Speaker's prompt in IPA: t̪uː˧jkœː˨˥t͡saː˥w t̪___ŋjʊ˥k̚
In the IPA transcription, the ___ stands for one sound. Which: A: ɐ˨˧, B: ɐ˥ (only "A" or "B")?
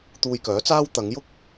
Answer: A